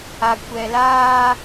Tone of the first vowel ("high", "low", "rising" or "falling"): low